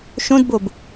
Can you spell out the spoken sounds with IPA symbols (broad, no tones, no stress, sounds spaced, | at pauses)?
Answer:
ʃ õ d b o b